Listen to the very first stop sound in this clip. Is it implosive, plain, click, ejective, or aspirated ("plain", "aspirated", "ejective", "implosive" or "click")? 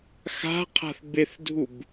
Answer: aspirated